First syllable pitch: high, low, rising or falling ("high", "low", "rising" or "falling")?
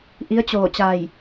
rising